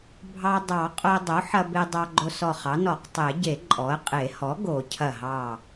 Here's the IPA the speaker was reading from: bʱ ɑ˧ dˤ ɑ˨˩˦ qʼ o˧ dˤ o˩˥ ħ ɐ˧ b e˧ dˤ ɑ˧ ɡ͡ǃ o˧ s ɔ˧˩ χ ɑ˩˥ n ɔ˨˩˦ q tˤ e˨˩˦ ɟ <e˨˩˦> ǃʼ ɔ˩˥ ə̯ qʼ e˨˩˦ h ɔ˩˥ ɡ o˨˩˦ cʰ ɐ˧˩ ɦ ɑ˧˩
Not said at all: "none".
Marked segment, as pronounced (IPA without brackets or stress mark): e˨˩˦